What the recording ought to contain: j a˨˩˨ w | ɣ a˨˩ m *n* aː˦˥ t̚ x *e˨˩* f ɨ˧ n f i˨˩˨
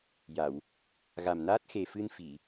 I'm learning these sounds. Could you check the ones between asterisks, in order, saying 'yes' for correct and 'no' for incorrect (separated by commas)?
yes, yes